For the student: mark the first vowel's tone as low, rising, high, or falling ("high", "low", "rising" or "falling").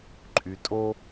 low